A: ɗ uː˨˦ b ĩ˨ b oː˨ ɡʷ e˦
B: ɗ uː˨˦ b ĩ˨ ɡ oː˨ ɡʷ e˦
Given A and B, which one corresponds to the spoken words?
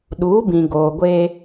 B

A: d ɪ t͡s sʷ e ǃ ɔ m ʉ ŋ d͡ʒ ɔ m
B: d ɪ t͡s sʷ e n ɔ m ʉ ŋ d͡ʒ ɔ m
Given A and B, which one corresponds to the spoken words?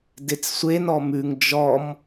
B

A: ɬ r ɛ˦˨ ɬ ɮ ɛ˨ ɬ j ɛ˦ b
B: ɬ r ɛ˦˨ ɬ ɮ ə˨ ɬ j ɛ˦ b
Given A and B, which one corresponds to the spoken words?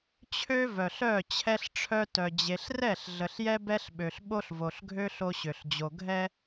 B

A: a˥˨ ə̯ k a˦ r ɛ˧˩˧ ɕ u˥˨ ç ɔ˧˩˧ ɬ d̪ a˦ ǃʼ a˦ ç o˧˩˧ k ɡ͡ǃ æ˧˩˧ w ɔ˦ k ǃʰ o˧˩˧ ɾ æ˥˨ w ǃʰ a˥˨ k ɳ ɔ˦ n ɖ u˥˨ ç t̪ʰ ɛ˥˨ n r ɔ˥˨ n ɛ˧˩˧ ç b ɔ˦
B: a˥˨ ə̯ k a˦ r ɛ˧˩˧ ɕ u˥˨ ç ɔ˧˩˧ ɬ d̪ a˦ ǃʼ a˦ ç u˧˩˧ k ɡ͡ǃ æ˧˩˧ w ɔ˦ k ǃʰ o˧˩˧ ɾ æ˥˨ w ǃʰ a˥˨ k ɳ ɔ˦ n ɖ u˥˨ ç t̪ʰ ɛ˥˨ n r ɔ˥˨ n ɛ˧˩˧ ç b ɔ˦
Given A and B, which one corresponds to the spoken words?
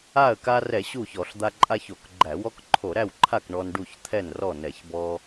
A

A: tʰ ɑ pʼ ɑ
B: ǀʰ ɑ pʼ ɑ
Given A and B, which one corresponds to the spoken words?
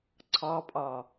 B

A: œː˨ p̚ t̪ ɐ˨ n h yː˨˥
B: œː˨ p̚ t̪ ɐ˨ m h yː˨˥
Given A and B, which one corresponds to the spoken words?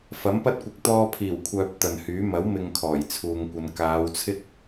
A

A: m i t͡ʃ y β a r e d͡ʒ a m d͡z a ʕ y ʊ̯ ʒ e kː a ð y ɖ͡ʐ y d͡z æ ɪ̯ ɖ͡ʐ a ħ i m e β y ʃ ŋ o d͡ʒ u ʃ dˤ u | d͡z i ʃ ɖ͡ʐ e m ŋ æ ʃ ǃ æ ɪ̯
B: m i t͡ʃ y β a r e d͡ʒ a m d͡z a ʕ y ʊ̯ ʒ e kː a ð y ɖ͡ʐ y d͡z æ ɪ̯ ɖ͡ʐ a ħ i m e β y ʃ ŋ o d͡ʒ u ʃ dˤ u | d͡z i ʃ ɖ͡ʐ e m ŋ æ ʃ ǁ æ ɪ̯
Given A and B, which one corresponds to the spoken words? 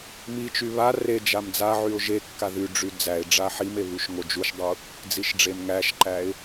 A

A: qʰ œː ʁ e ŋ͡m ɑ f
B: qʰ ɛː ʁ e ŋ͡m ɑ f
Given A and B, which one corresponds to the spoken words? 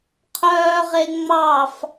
A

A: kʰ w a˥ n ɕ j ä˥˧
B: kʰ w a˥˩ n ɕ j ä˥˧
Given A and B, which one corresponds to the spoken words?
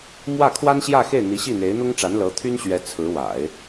A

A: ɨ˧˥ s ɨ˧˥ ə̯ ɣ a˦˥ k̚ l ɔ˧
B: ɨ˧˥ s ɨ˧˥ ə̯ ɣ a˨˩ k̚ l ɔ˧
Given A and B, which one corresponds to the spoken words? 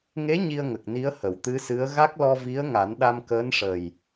A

